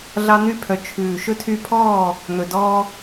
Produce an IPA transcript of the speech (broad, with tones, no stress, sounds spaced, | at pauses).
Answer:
ɮ ɑ˧ n̪ y˧ pʰ œ˨ t͡ʃʰ ʉː˨ ʃ ɵ˧ tʰ y˧ pʰ ɔː˦˨ | n̪ ɵ˨ d ɔː˦